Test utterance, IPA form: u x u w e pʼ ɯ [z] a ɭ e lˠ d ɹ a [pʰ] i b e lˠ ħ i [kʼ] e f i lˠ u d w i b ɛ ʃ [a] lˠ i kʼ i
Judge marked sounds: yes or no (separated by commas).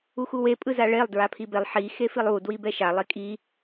yes, yes, no, yes